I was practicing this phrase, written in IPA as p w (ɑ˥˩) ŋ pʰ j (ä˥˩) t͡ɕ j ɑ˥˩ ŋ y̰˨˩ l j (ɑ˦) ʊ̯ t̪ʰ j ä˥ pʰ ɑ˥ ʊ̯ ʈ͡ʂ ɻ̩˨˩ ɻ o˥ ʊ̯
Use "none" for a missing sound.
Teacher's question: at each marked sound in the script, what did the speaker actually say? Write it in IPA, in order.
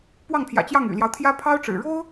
ɑ˥˩, ä̰˨˩, ɑ˦

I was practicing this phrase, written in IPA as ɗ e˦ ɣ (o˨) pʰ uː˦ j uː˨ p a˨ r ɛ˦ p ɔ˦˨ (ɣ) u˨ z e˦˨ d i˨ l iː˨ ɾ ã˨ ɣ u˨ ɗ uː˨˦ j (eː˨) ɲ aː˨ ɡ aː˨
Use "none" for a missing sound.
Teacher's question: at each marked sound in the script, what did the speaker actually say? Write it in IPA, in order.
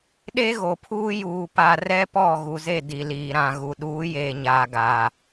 o˨, ɣ, eː˨

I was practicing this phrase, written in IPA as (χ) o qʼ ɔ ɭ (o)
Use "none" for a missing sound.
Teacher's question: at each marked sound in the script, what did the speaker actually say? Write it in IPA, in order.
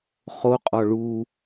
χ, u

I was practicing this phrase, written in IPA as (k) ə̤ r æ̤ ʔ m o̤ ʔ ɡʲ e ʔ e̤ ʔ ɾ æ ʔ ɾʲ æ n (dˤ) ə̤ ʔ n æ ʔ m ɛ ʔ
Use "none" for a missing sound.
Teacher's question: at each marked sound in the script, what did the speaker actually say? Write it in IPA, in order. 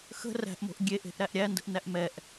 x, d

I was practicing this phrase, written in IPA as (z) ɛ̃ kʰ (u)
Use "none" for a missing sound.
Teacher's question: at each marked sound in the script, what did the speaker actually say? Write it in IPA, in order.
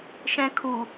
ʃ, u

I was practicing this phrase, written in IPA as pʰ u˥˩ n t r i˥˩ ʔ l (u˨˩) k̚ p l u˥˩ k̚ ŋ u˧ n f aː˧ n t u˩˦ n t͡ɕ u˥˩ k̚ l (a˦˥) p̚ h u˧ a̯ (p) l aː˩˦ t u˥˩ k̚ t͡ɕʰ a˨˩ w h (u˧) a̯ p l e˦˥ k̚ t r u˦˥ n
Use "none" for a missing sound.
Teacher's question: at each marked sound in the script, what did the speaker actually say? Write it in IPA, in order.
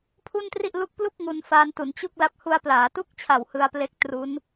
u˦˥, a˦˥, p, ɯ˧

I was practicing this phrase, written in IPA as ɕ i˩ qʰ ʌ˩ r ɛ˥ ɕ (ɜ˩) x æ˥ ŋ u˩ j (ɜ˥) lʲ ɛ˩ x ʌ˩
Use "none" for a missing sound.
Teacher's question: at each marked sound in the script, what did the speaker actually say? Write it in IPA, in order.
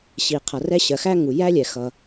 ɜ˩, æ˥

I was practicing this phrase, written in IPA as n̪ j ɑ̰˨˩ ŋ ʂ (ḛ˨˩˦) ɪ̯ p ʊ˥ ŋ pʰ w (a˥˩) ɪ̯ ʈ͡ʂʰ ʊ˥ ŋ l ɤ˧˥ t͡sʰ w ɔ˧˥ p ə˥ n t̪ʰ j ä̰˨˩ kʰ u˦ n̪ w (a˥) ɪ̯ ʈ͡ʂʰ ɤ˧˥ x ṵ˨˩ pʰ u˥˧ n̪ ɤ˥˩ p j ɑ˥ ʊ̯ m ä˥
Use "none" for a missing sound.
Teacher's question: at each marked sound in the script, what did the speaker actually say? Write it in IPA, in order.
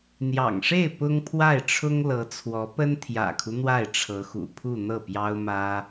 e˥˩, a˥˩, a˥˩

